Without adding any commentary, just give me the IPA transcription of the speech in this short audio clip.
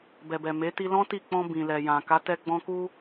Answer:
bɛ˨bɛ˨ me˨˦ti˧lɔ̃˦ti˦˨ k͡pɔ̃˧bĩ˨ lɛ˨jã˨ ka˨˦tɛ˧ɡ͡bɔ̃˧ ku˧

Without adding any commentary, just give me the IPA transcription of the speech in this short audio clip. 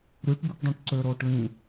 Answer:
ɾyʈ bɯʈdˤũʈǀøɾoːʈ lĩ

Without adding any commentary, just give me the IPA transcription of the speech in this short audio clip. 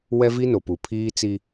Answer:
wɛ˦vi˦no˨pu˨ pʰiː˦t͡si˦

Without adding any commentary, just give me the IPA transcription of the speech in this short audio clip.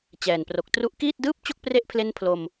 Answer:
t͡ɕɛː˨˩npro˨˩k̚tru˥˩ʔ kiː˥˩t̚dɯː˥˩p̚t͡ɕo˥˩k̚ pre˦˥ʔpʰle˦˥n pʰlo˧m

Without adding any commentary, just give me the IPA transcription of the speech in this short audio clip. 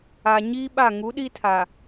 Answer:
a˨ɲiː˦ɓa˦˨ ŋu˨˦ɗi˦tʰa˨

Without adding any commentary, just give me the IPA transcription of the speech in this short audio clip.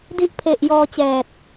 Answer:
di˦˥ʔpʰe˨˩ʔ jɔː˧t͡ɕɛː˨˩t̚

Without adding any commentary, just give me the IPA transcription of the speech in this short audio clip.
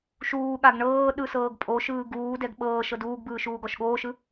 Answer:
ʃuːɠaɡ ɳɤː ɗɯsɤːɡpʼoʃɯː ɡuːdɛɡ ɓɤːʃ ɤduːɡbɯː ʃuːɡɔʃɠoːʃɯ

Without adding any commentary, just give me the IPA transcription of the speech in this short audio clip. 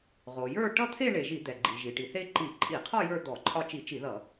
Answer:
ʁo˩jə˞˥˧ ʈʌ˥˧ t̪ʰe˥˧ɳe˩ ʒi˧˩˧ d̪ɛ˩ ɡ͡ǃi˩ʒi˩ʈi˩ θe˥˧ǃi˧˩˧ ǃʼi˧˩˧qʰɔ˥˧ jə˞˥˧ d̪ɔ˧˩˧ǃʼɒ˥˧ t͡ʃi˧˩˧t͡ʃi˧˩˧ ðʌ˧˩˧

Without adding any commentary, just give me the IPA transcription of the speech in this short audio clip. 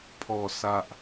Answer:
pʰɔ˨˩sa˨ʔ

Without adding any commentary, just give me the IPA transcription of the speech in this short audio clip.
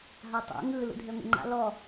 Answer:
ɦatˤo̰ ŋɯ lṵdʱeŋʷḛŋ͡ǃa̰ lɔ

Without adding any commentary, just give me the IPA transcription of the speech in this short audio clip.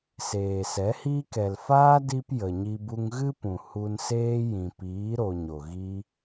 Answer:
seː˨sɛ˨˦hiː˦k ɛ˨lfaː˦ di˧p jə˨ɲi˧ bu˧ŋɣɨ˦pũ˨ hu˧n seː˦ jĩ˨piː˨˦ ɾo˧ɲo˨ɣi˦

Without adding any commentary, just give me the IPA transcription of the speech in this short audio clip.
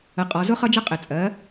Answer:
ə˨˩qʼɒ˩˧ zʊ˥χʌ˥d͡ʒʌ˥ qʼɪ˨˩t͡sʼɜ˩˥

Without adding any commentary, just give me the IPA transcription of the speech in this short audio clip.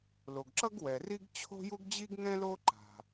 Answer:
lo˩ɡǁʌ˥ɡ wɛ˩ri˥ɡ t͡ɕʰo̤˥ju˥ɡd͡ʑi˥ɡ ŋɛ̃˥lo˥ ǃa̤˩

